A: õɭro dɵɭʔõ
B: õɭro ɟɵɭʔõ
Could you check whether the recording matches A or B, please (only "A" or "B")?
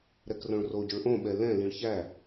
B